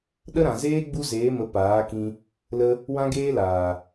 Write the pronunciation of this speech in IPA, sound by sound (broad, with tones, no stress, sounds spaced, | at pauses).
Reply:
ɗ ə˦ ɾ ã˨ z eː˦ ɡ͡b u˦ z eː˨˦ m ə˨˦ p aː˨˦ k ĩ˧ | l ə˧ | w ã˦ ɡ eː˦ l aː˨